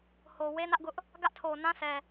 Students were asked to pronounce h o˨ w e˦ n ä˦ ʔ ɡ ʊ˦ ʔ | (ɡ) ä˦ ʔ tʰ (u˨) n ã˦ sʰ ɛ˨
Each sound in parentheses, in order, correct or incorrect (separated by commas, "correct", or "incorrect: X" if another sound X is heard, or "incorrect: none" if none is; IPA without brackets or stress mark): correct, incorrect: o˨